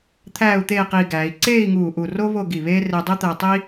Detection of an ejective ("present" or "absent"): absent